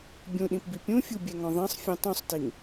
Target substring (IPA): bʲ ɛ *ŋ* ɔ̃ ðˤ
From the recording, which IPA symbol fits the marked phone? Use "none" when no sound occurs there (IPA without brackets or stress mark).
ŋ